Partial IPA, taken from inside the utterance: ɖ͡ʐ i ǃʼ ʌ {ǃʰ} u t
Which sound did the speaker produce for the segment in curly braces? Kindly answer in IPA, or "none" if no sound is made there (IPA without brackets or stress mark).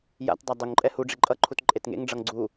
ǃʰ